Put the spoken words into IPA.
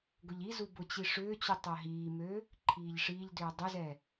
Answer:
ɡ ʊ ʎ i z u b ʊ t͡ɕ i ʂ ʏː t͡ɕ u tˤ œ ɦ iː m ø | ǃʰ iː ʎ ʂ i ʎ d ʏː dˤ ʏ z ɛ

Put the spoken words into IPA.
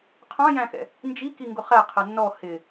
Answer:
qʰ ɑ̃ j æ̃ x ɛ̰ | n d͡ʒ i k i ŋ ɡ ʊ χ æ qʰ ə nː ɔ h ɪ

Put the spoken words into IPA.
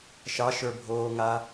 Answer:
ʃ ɑ ʃ ə˞ bʱ oː ŋ a

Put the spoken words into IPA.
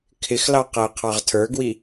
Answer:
kʰ ɪ x l ɑ q æ ə̯ qʰ ɑ ʁ tʰ ə˞ ɡ w i

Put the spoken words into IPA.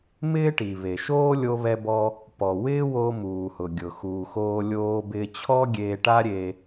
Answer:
m ɪː˥ ʈ i˩ β e˩ ʃ oː˥ lʲ o˧ β ɛ˧ b ɔ˧ | p ɔ˩ w ɪː˥ w o˧ m uː˩ h ʊ˩ ɡʲ ʊ˩ x uː˩ x oː˧ lʲ oː˧ b ɪː˧ t͡ɕʰ ɔ˥ ɡʲ eː˧ ʈ a˥ ɾʲ e˧

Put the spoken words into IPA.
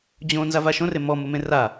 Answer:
d͡ʑ õ n z a v a ʃ õ r e m ɔ m ʊ m ẽ r a

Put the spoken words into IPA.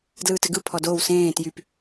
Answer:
d l ɯː t ɘ ɡ ɯ pʰ ɔ d oː w s ẽː t j y p

